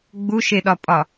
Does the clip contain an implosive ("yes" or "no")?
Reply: yes